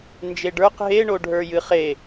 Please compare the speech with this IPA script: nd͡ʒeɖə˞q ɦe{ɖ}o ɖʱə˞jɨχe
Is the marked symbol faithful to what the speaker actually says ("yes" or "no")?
no